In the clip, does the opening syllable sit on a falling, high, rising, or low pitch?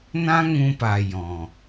high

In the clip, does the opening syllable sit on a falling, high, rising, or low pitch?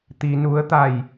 low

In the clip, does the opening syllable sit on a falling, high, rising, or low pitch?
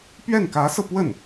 falling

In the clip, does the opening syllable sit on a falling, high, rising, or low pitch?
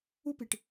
high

